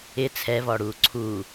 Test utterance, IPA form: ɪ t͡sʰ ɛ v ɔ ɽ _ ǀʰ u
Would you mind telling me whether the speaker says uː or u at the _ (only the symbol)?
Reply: uː